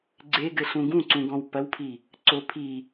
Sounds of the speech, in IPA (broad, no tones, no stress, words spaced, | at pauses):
ɡ͡ǀeɡɘɬũ ɡũǀũɡɔ̃w pɐwpʰi | ǀo pʰi